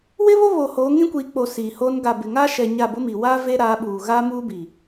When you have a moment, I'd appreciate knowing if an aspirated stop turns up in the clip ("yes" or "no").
no